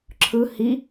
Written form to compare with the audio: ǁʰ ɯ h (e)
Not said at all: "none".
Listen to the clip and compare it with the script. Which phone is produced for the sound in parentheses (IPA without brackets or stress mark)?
i